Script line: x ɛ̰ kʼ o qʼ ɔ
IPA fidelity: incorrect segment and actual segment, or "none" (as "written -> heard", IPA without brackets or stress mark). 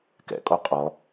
x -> k